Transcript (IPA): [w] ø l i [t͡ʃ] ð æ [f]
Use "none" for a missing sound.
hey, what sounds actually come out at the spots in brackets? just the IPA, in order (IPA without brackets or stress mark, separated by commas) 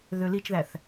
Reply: ð, t͡ʃ, θ